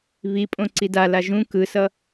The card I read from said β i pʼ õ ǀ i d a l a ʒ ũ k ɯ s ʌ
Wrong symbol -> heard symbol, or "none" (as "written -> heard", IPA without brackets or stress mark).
none